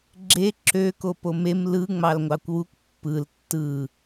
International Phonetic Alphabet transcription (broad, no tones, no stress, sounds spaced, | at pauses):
ɡ͡ǁ e ǁ ø k o p o m e m l ɯ ŋ͡m ɑ l ŋʷ ɑ kʷ w u kʷ pː ɯ l tː ɯ